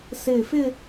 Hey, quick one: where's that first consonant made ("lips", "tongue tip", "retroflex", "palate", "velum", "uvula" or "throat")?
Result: tongue tip